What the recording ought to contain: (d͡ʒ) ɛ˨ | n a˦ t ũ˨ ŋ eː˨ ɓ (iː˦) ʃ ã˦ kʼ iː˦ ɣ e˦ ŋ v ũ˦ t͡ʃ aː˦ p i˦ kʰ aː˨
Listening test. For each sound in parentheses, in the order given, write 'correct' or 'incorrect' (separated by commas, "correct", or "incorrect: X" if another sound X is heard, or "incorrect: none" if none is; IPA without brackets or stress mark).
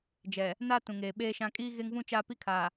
correct, incorrect: eː˦